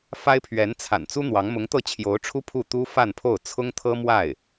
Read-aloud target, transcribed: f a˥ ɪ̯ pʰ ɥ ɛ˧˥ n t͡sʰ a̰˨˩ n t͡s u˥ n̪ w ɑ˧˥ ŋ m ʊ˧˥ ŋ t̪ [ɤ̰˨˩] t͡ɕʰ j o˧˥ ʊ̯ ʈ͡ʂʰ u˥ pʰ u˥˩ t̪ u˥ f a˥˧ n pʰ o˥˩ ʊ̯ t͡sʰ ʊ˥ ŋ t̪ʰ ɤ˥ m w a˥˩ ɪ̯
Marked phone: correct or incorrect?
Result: incorrect